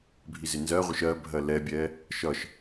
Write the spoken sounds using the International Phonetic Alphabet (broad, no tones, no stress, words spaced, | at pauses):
bʱizɪnzɜʁʷɪʃ ɜ bʱɜlɛbʲɛ | ʃʌʃ